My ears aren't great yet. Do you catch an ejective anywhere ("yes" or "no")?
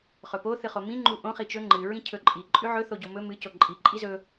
yes